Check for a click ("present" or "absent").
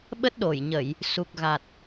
absent